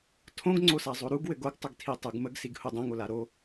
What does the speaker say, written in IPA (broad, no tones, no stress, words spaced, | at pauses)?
tʰõɡŋ͡ǀosazˤo ɾuɡwɘɡ oɡtˤəɡtʰitˤuɡ məɡsiɡhu dˤõŋola ɾo